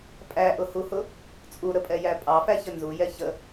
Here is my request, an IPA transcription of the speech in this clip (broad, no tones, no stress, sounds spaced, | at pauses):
pʼ æ ʔ ʊ h u h ʊ | t͡sʼ u ɾ ə pʼ ɛ j æ pʼ ɑ f æ ç ə n z u j ɛ ç ə